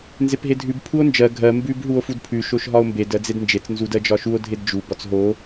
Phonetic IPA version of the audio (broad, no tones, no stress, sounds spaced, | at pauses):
n z e p ɦ e dʱ ʉ b pʰ u o̯ n d͡ʒ ɜ ɡʱ ɜ m b ʉ b ɦ u o̯ f u d pʰ ʉ ʃ o ʃ ɦ ɒ o̯ m b e d ɜ d͡z e d n d͡ʒ e t͡s n z u d ɜ d͡ʒ ɒ ʃ u o̯ dʱ e d d͡ʒ u b ɒ t͡s ɦ o